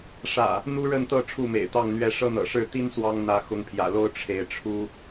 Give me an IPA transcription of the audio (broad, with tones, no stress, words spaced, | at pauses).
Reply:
ʂä̰˨˩ | n̪u˦ɻə˥˨nt̪ɤ˥˨ ʈ͡ʂʰu˥˨mḛ˨˩ɪ̯t̪ɑ˥˨ŋn̪ɥɛ˥˨ ʂɤ˦n̪ɤ̰˨˩ʂɻ̩˥˨ t̪i˦n swɑ˦ŋ n̪ä˨˦ xʊ˨˦ŋpʰjä̰˨˩lo˦ʊ̯ ʈ͡ʂʰe˨˦ɪ̯ʈ͡ʂʰu˦